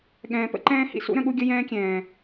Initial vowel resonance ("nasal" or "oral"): nasal